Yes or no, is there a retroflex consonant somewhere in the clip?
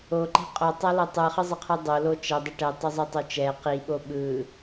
yes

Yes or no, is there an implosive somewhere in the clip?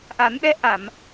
yes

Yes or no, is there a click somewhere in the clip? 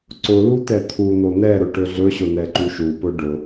yes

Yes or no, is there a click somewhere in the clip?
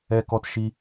no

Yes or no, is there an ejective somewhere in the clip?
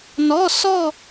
no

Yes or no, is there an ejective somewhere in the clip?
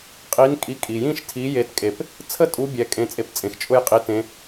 yes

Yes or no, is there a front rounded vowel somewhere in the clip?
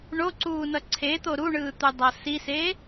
no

